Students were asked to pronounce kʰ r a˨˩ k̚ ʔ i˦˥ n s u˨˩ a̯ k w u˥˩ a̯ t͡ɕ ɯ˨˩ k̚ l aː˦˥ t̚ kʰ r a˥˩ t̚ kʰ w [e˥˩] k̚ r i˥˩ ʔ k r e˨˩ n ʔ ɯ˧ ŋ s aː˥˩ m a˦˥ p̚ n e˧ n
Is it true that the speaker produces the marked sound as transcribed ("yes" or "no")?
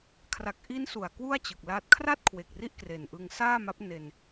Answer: no